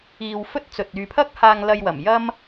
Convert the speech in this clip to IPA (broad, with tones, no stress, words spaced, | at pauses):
iː˧w fɵ˥t̚t͡sɵ˨t̚ yː˨pʰɐ˥k̚ haː˧ŋlɐ˧jwɐ˨˩m jɐ˥m